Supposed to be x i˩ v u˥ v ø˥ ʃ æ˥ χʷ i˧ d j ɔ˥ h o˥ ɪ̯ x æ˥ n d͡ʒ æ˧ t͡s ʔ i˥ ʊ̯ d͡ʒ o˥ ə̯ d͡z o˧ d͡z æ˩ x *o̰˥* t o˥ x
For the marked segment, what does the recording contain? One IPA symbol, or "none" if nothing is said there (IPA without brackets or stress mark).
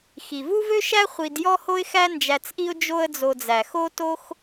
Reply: o˥